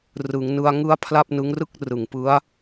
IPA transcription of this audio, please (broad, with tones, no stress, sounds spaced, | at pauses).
r ɯ˩˦ ŋ n ɯ˧ a̯ ŋ ɯ˦˥ a̯ pʰ l a˥˩ p̚ n ɯ˦˥ ŋ r ɯ˥˩ k̚ r ɯ˨˩ ŋ p ɯ˦˥ a̯